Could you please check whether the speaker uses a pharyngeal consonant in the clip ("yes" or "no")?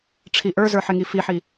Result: yes